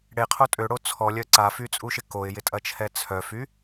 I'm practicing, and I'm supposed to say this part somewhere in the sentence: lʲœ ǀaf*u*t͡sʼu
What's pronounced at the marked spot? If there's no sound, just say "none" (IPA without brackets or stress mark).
y